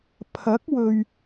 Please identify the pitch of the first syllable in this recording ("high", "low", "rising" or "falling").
rising